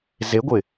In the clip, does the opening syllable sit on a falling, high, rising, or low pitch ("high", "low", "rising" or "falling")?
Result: rising